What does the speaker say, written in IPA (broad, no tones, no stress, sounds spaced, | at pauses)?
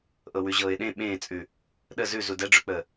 ʔ ɤ w ʉ ʑ ɤː ɪ̯ ɗ ẽ ɓ ẽː t͡sʼ ʉ | ɗ ə z ʉ z u d ɛ ɖ͡ʐ ʉ k͡p əː